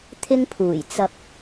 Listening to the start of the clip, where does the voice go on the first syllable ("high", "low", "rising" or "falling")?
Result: high